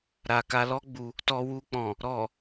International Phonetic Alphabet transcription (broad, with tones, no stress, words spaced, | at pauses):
ɾa˨ka˧lɔ˦ ɡ͡bu˧ | tɔ˧wu˧k͡pɔ̃˨ | ɾɔ˨